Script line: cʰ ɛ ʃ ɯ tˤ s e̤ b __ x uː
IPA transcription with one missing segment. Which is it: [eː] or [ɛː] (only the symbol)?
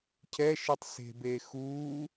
eː